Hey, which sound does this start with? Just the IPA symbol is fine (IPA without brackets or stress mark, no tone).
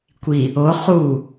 kʷ